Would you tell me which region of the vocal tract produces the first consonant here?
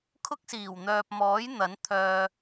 velum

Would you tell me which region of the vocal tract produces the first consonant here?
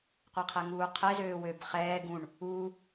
uvula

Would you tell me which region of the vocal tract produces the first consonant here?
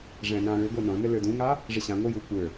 retroflex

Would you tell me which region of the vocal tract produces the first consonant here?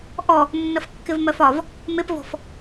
throat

